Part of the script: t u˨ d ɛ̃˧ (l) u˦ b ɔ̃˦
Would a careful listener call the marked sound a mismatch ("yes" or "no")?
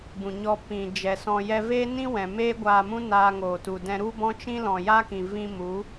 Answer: yes